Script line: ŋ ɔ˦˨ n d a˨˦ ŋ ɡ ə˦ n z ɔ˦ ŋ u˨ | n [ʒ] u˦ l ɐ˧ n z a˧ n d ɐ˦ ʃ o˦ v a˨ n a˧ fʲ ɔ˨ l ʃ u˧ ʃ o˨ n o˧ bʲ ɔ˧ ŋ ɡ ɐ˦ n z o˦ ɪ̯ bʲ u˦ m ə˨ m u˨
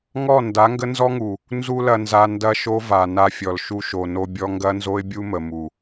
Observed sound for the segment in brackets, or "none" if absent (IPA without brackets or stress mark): z